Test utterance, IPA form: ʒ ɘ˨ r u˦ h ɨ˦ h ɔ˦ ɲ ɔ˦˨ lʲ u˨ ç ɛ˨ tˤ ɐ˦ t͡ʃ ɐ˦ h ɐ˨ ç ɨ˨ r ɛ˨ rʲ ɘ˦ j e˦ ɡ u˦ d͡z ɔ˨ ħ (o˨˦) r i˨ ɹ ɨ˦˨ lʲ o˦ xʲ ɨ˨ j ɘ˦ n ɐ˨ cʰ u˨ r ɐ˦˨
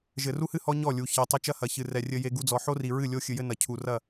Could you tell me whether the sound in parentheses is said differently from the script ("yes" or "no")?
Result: yes